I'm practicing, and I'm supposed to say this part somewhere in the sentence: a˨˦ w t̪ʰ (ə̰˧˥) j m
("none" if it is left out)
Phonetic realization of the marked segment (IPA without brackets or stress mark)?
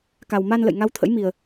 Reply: ə̰˧˥